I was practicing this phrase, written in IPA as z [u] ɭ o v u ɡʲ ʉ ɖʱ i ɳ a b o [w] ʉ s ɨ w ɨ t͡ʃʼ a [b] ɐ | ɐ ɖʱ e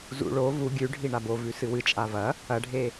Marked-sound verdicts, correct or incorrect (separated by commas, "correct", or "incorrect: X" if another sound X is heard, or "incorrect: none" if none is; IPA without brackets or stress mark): incorrect: ṵ, incorrect: v, incorrect: v